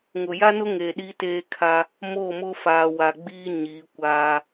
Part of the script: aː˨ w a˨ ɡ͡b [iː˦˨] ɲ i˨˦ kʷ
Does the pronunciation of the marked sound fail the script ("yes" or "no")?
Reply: yes